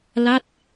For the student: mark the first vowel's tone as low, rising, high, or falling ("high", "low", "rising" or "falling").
falling